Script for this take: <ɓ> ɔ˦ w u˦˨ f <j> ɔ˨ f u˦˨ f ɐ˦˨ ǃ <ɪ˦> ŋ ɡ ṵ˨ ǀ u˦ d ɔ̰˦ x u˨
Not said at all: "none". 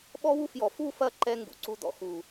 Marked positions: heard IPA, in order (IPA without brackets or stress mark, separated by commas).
ɓ, j, ɛ˦